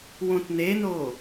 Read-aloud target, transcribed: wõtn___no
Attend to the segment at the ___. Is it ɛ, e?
e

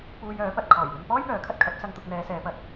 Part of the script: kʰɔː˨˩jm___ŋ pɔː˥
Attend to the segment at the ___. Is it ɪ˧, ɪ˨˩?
ɪ˧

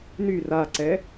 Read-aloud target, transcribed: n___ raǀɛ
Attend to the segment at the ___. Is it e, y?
y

